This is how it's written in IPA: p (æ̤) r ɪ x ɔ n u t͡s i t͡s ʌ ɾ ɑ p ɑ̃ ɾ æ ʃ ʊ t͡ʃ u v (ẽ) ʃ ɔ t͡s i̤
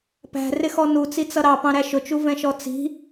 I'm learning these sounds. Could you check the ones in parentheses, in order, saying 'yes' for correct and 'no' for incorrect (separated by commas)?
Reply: yes, no